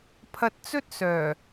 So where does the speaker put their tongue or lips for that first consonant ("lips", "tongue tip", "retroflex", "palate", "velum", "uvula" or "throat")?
lips